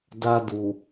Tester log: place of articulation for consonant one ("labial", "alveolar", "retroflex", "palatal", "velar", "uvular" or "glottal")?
alveolar